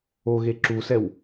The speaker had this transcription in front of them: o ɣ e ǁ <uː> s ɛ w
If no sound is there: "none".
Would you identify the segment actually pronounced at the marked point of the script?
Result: u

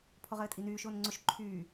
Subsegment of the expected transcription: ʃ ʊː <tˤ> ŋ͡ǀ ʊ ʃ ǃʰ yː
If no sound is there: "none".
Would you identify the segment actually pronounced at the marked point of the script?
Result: n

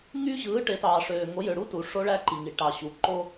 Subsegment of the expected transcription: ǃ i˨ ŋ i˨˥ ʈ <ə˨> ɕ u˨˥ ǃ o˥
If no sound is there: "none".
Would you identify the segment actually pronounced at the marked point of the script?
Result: ɑ˨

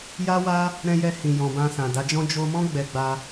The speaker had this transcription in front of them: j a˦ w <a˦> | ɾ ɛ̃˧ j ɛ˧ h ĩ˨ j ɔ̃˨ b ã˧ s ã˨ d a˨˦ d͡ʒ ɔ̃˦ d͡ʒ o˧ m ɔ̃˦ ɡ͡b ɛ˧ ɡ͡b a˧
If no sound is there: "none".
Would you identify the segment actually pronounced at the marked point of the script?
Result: a˦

